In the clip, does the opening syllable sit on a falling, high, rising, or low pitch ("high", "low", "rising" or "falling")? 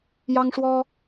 high